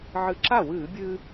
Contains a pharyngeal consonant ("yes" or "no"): yes